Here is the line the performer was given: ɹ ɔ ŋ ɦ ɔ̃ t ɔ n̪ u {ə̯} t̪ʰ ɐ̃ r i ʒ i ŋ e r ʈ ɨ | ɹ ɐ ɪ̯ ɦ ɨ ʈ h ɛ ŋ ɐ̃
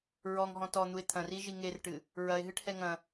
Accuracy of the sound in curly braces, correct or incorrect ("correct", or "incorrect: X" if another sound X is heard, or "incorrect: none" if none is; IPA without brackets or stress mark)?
incorrect: ɪ̯